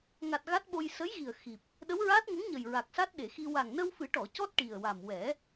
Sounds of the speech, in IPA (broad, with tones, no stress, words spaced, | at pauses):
ŋa˨˩t̚ ɣa˦˥t̚ɓo˧j sə˧˥jɣi˨˩ə̯ xi˨˩p̚ | ɗə˧˥wɹaː˦˥t̚ ŋə˧˥ŋɲə˨˩j ɹa˨˩k̚sa˦˥t̚ɗe˨˩˨xi˧ wa˨˩ŋnə˧wfɨ˨˩˦ʈɔ˨˩˨ cɔ˦˥t̚ʈi˨˩ə̯wa˨˩m wɛ˨˩˦